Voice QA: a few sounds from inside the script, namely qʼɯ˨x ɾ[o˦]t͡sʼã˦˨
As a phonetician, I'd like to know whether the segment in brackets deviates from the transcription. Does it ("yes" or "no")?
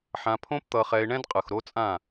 no